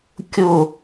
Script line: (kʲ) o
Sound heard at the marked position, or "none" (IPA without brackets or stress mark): kʲ